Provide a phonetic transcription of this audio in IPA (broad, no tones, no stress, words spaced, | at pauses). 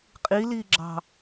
qʼiliːɡ͡ǁɑ̤